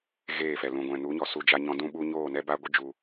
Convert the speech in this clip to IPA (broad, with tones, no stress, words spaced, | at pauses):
ɣeː˦˨fɛ˨ lũ˨ɡʷɛ̃˨nu˨˦ɲɔ˨ su˦d͡ʒa˦ɲɔ̃˦ dũ˦ɓu˦ ɲoː˦˨nɛ˦ba˦ɡʷɨ˦ d͡ʒu˧